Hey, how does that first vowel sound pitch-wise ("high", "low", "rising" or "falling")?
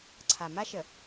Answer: low